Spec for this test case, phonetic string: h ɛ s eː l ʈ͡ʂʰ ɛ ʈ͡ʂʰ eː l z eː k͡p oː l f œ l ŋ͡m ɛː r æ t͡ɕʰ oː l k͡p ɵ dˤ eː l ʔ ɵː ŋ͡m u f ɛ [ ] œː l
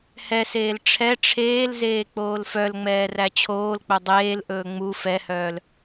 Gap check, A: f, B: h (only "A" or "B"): B